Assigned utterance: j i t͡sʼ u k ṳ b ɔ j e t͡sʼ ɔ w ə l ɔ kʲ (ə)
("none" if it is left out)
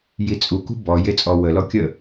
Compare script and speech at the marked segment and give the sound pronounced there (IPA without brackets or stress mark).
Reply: ə